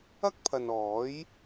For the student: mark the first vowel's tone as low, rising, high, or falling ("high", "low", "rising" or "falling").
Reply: high